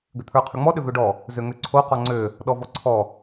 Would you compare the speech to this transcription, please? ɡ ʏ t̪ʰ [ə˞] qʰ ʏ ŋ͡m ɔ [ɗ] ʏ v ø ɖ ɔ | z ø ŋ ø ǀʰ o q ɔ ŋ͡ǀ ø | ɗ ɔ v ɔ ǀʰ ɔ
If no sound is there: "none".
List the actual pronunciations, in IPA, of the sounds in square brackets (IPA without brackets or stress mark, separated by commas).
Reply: ə˞, ɗ